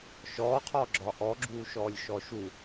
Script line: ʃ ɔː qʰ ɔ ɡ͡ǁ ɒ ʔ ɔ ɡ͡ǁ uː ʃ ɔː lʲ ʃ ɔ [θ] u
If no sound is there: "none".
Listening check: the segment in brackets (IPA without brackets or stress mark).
ʃ